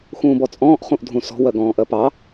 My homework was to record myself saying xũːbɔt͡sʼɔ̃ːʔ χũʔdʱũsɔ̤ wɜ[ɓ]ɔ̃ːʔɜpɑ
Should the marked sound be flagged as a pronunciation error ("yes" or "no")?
yes